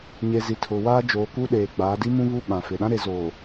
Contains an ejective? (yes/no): no